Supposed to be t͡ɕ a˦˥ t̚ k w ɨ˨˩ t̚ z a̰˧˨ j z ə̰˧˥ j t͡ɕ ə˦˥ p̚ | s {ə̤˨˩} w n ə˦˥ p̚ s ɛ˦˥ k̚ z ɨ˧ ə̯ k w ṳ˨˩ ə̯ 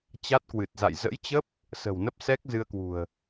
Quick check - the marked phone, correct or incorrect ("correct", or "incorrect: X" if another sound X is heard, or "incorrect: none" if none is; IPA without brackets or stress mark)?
correct